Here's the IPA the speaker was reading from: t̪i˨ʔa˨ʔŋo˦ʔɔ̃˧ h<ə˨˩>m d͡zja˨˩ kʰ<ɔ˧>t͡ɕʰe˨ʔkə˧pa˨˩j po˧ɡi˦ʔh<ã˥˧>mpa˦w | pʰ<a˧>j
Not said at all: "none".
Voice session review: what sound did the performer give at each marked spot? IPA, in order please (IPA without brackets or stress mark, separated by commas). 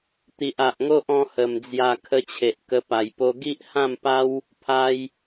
ə˨˩, ə˧, ã˥˧, a˧